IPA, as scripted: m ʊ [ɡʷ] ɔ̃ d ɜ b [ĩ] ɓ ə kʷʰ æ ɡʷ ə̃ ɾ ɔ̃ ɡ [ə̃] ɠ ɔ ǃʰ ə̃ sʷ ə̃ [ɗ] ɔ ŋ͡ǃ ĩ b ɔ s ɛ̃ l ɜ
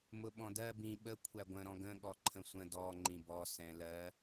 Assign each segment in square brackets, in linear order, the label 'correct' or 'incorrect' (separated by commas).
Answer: incorrect, correct, correct, incorrect